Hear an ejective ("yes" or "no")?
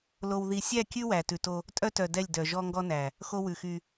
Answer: yes